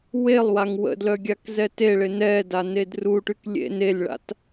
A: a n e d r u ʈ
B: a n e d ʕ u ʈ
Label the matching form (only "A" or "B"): A